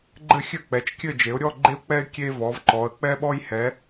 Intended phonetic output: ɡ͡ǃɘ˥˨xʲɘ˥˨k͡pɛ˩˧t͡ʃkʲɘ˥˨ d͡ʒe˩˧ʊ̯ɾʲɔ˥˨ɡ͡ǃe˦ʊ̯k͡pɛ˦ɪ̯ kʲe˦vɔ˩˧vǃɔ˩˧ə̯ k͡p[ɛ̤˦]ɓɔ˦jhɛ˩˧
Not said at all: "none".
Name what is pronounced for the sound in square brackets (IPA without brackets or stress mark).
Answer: ɛ˦